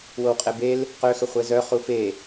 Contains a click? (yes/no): no